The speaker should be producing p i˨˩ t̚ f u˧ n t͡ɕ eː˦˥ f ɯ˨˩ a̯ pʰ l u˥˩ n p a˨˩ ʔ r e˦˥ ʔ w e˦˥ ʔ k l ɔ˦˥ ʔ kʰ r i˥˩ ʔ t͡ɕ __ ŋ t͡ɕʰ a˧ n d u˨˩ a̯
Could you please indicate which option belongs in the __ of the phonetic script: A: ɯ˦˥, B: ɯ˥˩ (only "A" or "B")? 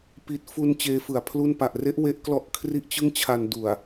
B